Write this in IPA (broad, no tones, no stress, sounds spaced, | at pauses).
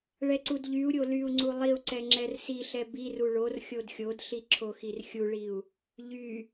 ɭ ɛ ǀ u d ʎ y u̯ ɾʲ o l y u̯ ŋ͡ǀ u lˠ i u̯ ǀ ɛ ŋ͡ǁ ɛ r s i ɬ ɛ b i r u ɭ o r xʲ o d xʲ o d ɬ i ǁʰ o x i r xʲ u ɭ i u̯ | ʎ y